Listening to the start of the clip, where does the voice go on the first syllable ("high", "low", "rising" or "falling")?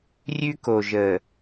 high